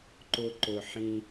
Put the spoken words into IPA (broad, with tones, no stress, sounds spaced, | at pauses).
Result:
ǃ ʊ˧ ǃ ʊ˨ ħ ĩ˧